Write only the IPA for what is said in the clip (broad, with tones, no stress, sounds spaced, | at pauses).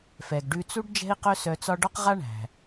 f ɛ˩ ɡ ɖ ʉ˧ t͡s u˥ ɖ d͡ʒ ɛ̤˥ i̯ q œ˥ s œ˧ t͡s ɒ˥ ɖ ɒ˥ q ʁ a˥ ɳ æ̤˩